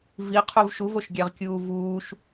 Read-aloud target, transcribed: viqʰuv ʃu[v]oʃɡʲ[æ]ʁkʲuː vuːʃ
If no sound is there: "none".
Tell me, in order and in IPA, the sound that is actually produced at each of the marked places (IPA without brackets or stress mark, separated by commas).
v, æ